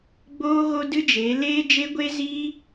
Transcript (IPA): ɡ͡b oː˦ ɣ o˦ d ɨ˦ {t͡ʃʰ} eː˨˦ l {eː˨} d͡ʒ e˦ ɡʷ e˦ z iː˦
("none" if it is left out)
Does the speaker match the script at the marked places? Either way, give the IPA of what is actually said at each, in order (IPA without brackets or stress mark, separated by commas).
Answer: d͡ʒ, eː˦